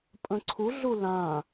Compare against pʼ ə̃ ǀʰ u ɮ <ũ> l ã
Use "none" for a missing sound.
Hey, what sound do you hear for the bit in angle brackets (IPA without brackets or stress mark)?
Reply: u